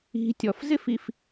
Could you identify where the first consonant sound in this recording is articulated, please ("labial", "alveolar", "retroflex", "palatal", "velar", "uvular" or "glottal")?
alveolar